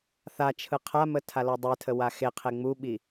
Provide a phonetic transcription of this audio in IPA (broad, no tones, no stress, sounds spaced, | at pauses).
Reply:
θ a t͡ʃʰ ɯ qʰ a m ə tʰ a l ɔ dˤ e tʰ ə w a x e qʰ e ŋ͡m u ɓ i